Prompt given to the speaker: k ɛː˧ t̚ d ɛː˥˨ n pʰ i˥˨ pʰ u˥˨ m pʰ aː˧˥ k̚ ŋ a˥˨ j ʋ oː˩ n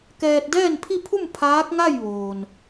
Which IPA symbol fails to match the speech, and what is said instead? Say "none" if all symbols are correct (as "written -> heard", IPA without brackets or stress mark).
none